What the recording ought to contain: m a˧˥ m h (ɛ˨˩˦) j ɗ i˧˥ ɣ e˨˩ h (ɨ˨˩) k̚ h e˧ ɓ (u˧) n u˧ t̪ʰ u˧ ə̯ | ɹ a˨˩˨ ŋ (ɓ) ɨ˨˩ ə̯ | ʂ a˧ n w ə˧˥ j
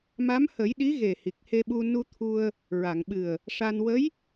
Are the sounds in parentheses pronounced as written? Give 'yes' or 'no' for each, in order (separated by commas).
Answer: no, no, yes, yes